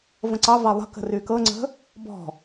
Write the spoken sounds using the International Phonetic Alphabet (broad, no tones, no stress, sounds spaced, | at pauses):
v ə̃ ǀ ɑ v ɑ lˠ ə̤ k ə̤ r y k ɤ ŋ͡ǀ ə̤ | b ɔ̤